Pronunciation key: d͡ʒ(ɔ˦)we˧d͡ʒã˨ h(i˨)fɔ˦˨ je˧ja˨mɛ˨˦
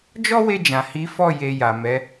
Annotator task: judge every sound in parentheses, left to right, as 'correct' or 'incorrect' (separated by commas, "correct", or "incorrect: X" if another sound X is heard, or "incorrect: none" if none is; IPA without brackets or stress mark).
correct, incorrect: i˨˦